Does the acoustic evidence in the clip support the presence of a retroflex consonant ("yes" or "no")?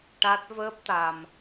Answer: yes